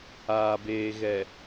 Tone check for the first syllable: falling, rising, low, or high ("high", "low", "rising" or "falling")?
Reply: low